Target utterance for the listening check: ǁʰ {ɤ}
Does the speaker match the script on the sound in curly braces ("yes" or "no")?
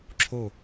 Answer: no